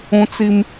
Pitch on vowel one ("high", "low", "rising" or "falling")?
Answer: high